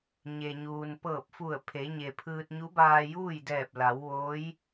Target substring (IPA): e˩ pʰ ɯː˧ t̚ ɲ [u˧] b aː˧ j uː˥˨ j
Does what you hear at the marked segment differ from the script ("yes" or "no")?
yes